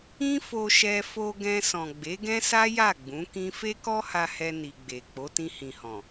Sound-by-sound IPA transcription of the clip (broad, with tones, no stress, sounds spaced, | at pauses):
ĩ˦ f o˧ ʃ ɛ˧ f o˧ ɡ ɛ̃˧ s ɔ̃˨ ɡ͡b e˨˦ ɡ ɛ̃˦ s a˦ j a˦˨ ɡ͡b ũ˨˦ k ĩ˦ f e˦ k ɔ˦ h a˧ h ɛ˧ n i˨ ɡ͡b e˨ k͡p o˨˦ t ĩ˧ h ĩ˨ h ɔ̃˨